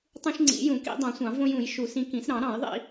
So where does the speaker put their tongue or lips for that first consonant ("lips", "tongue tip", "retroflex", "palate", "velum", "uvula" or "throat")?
tongue tip